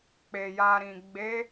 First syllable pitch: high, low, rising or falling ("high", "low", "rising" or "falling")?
low